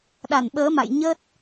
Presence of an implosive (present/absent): present